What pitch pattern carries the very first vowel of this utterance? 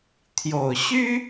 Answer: low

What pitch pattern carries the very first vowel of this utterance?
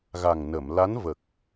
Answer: low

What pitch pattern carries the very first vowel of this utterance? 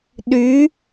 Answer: rising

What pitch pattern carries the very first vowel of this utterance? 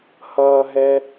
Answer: high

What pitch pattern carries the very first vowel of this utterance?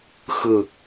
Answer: falling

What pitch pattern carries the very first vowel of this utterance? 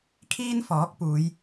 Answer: high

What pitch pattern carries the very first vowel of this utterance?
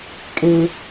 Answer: high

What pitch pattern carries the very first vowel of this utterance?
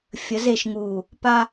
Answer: rising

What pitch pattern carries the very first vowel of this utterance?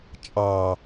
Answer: low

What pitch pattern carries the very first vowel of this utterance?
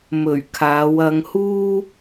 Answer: low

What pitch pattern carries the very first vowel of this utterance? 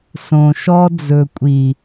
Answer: low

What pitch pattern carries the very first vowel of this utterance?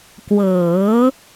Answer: rising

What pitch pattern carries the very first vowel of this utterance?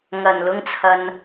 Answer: low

